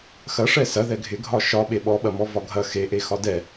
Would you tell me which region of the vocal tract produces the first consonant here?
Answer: velum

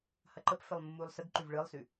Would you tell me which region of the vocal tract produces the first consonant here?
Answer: throat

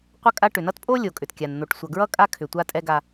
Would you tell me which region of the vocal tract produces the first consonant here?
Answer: uvula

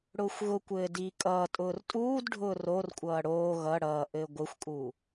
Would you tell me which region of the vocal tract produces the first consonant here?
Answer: retroflex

